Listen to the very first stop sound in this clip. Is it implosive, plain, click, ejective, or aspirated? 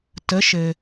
plain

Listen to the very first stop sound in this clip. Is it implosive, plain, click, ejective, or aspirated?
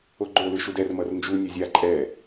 click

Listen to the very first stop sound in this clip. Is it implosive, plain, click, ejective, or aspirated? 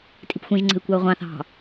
ejective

